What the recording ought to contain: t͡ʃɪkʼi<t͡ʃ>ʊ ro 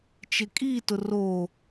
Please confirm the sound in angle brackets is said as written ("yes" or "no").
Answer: no